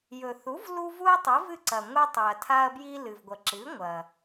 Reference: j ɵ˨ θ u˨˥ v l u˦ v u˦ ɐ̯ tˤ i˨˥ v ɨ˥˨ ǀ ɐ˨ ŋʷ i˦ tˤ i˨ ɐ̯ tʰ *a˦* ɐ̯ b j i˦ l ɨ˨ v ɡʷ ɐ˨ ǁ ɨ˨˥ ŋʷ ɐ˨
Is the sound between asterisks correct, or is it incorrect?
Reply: correct